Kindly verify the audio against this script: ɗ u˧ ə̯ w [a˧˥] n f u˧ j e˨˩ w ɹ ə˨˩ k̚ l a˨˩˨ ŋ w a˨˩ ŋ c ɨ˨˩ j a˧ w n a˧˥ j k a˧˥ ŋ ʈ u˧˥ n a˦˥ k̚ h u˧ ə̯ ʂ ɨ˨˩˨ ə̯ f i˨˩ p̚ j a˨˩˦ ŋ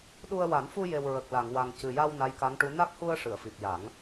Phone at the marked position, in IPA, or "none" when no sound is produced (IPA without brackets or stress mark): a˨˩˦